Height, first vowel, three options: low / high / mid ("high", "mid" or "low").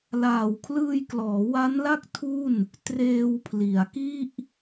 low